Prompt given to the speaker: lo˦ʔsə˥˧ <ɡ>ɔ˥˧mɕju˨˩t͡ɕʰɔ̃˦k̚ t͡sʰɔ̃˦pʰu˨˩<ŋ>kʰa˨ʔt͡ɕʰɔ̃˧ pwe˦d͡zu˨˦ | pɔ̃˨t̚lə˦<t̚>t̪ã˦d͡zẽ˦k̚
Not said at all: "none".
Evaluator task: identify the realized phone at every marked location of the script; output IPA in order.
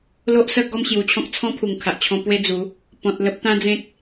ɡ, ŋ, p̚

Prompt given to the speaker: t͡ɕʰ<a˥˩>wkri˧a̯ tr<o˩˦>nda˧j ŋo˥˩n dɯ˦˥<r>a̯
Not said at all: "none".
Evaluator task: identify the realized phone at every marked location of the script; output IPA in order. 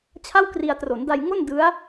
a˥˩, o˩˦, none

